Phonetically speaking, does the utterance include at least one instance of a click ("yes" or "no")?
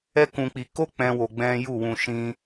no